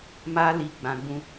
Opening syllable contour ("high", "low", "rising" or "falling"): high